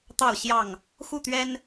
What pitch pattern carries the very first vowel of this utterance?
falling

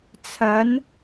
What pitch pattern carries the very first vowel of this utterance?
rising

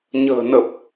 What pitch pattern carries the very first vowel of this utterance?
low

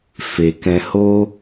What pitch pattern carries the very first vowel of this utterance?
low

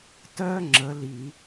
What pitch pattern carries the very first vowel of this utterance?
high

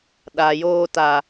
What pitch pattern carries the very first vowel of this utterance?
low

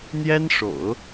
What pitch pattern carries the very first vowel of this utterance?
high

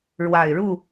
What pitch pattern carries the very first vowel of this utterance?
low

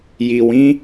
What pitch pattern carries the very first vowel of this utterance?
low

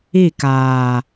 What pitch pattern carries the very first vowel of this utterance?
falling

